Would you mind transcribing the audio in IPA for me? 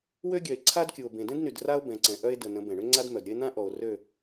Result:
w ø˦ ɡʲ œ˨ e̯ ǀʰ a˦ d kʲ u˨ o̯ b ẽ˨ d ɛ̃˦ d n y˨ d r a˦ o̯ b ɛ̃˨ ǀ ɛ̃˨ ʔ œ˦ e̯ d ə˨ n ə̃˨˦ b ɛ̃˨ ɳ ø˦ ŋ͡ǀ a˦ d m œ˨ d ɾʲ ə˦ e̯ n̪ ã˦ ʔ ɔ˨ o̯ r ø˦˨

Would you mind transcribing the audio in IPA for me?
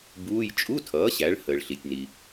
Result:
b uː˧˥˧ j t͡ʃʼ u˧˥˧ tʰ ʌː˩˥ ɕ æ˩˥ ɭ h əː˩ ɭ ɬ i˩ tʲ n i˩

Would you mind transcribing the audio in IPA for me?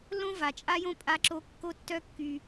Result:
l õ˦ v a˨ t͡ʃʼ a˦ j õ˦ pʼ a˧ ǁ o˧ kː o˦ tː œ˦ kː y˧

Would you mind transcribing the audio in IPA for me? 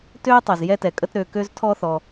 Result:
t ø˥ j tˤ ø˩ z j ɛ˥ t ɛ˩ kʼ ə˥ t ɾ ø˩ k ø˥ z tʰ ɔ˥ θ ɔ˩

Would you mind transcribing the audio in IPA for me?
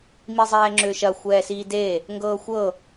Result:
m i zˤ ɛː ŋ͡ǁ ʏː ʃ ɐ xʷ ɛː s iː d e | ŋ ɡ ɤː xʷ ɤ

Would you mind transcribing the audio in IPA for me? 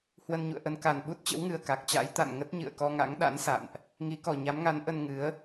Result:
h w ə˧ n ɲ ṵ˧˨ ə̯ ʔ ə˧ n k a˨˩ n ɓ u˦˥ t̚ t͡ɕ ə̰˧˥ w ŋ ɨ˨˩ ə̯ k a˨˩ k̚ t͡ɕ a̰˧˥ j t̪ a̰˧˨ n ŋ ə˦˥ t̚ ɲ ɨ̰˧˨ ə̯ k ɔ˧ ŋ a̰˧˥ ŋ ɗ a̰˧˥ n s a̰˧˨ n ʔ | ŋ i˨˦ k ɔ˨˩ ɲ a˨˦ m ŋ a˨˦ n ʔ ə˧ n ŋ ɨ˨˦ ə̯

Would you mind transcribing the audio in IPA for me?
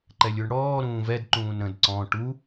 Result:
ǃ ɛ lʲ u ɳ ɽ ɔː ɾ ũː v ɛ d ǃ ũː n ɾ ə̃ d ǀ ɔ̃ ʈ u

